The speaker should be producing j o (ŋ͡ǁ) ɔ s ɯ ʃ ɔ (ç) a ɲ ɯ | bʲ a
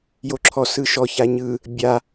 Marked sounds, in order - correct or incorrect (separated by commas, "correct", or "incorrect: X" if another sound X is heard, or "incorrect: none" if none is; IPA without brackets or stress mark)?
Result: incorrect: ǁʰ, correct